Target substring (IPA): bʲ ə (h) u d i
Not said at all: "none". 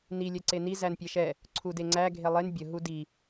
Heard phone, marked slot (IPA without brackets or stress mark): ɦ